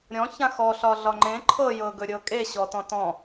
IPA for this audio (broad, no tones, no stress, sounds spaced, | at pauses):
ɾʲ ɔ̃ ç ã x ɔ ɬ ɒ ɮ ɒ ŋ͡ǃ ẽ ǃʰ ɤ j ɤ ɡ ɵ ɾʲ ɤ kʼ e ɕ ɔ t ɔ̃ t ɔ̃